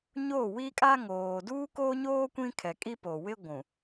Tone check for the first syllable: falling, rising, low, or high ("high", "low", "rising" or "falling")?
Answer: falling